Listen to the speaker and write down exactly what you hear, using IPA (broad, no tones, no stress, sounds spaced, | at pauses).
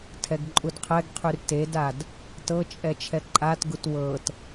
tʰ ɛ ɡ ǃʼ u d qʰ ɛ ɡ qʰ y r t e d a d | t ɤ t͡ʃʼ ɛ t͡ʃʰ ɛ ǃʼ a t ɡ u t w ɤ t